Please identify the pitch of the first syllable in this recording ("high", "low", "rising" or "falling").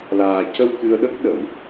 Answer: low